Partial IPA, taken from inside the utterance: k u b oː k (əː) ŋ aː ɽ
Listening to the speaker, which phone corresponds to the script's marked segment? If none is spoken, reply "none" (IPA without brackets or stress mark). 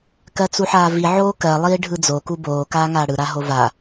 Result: aː